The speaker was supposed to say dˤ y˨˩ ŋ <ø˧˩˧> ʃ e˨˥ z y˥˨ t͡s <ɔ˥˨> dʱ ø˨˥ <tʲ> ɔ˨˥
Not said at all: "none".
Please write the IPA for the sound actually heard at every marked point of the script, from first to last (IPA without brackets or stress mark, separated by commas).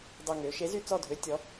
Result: ø˩˧, ɔ˥˨, tʲ